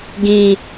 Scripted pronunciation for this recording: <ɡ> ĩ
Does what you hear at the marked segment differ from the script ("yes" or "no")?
no